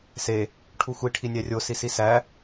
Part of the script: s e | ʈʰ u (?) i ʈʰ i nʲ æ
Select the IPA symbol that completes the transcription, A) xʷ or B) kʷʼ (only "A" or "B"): A